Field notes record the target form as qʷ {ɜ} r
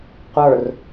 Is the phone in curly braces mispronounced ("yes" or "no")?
yes